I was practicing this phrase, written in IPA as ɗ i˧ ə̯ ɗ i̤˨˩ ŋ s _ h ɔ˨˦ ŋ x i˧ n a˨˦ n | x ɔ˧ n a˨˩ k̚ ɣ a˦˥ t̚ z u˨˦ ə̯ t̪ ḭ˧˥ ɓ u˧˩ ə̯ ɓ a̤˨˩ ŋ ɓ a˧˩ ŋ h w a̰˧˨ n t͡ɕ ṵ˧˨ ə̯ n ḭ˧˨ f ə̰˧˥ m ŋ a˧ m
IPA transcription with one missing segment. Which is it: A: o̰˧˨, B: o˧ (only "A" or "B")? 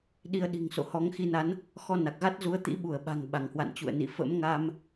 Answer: A